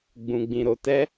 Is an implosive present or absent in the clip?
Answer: absent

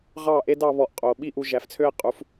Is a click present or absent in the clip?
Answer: absent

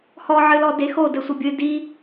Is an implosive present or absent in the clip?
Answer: absent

